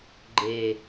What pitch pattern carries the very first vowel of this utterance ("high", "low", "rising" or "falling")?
low